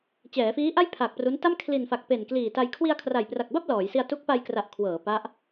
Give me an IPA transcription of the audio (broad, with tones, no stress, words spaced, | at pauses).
t͡ɕɛː˩˦fiː˦˥ʔa˥˩j pʰa˨˩k̚ pru˦˥nta˥˩m kʰli˨˩nfa˨˩k̚ pe˨˩nkliː˨˩ta˧j kʰwi˧a̯kʰra˨˩jpra˨˩k̚ba˥˩p̚ lɔː˩˦jsi˧a̯ tu˦˥k̚ pa˧jkra˨˩ʔ kʰwɤː˩˦ pa˦˥ʔ